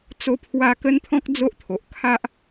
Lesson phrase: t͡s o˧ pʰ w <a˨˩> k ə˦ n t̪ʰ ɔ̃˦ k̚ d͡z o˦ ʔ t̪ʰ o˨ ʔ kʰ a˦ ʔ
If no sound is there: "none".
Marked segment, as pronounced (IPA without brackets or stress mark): a˧